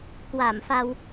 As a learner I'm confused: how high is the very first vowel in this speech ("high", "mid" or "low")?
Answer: low